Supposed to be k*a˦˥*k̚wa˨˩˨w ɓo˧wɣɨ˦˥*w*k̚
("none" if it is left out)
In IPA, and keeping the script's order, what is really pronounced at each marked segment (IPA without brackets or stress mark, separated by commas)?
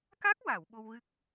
a˦˥, none